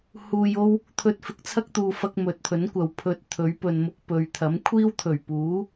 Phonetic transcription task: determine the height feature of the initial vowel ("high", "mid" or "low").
high